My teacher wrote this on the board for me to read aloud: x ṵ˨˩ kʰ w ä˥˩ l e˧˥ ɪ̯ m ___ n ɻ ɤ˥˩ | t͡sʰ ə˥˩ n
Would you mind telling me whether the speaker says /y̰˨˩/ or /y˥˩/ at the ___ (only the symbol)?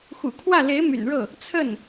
y̰˨˩